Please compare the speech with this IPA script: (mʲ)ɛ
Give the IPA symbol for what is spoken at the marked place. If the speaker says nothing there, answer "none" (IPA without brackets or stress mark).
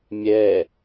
mʲ